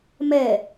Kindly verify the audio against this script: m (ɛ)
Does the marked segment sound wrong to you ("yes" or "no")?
no